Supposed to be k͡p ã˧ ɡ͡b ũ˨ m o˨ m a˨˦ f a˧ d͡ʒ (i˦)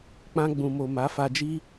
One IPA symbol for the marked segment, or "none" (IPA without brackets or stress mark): i˦